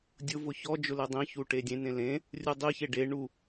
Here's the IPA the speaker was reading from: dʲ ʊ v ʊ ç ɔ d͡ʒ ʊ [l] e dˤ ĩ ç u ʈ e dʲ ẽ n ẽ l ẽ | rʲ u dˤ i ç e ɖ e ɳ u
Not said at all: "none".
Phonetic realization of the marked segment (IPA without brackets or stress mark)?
l